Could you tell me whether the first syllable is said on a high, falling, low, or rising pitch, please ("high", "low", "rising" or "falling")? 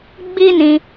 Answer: high